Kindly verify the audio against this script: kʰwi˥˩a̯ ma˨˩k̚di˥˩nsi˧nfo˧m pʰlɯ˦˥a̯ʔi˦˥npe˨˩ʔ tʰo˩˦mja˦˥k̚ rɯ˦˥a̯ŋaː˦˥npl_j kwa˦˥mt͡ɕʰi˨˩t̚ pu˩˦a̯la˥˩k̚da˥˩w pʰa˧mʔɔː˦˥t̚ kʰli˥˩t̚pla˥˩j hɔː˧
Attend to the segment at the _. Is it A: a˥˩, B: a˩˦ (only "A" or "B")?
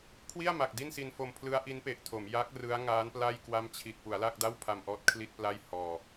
A